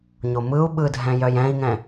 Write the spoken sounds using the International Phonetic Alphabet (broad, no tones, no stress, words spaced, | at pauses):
ɲomɯu̯ ɓɯdʱɛ̃ jœjɛ̃i̯ŋɛ̃